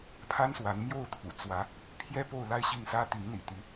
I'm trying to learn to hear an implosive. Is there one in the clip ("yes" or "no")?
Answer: no